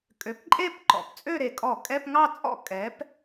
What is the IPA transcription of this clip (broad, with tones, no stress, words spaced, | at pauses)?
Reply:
kʼø˩˥pǃʼe˥˧p ǃɔ̰˨˩pt͡sʼø˥˧ɾe˨˩kʼɔ˧˩˧ kʼɛ˧˥˧pŋɑ˥˧t͡sʼɔ̰˥˧ kʼɛ˩˥p